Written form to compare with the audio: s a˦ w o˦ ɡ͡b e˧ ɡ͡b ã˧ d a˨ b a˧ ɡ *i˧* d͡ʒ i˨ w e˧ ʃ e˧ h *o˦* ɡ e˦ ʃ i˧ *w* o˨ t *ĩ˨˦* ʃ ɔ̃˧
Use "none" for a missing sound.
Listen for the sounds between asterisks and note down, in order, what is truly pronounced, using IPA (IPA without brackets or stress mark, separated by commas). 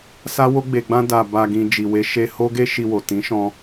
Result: ĩ˧, o˦, w, ĩ˨˦